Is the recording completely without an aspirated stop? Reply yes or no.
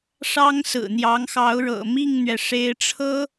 no